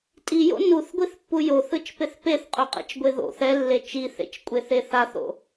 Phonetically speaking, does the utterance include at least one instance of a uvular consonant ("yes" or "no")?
yes